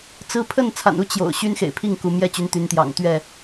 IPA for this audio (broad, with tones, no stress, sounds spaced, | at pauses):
t͡s ɹ̩˦ pʰ ə˥˨ n t͡sʰ a̰˨˩ n u˦ t͡ɕ j o̰˨˩ ʊ̯ ɕ y˦ n x ḛ˨˩ ɪ̯ pʰ i˥˨ ŋ k u˨˦ m j ɛ˥˨ t͡ɕ y˨˦ n t̪ y˨˦ n t̪ j ɑ̰˨˩ ŋ t̪ ɥ ɛ˥˨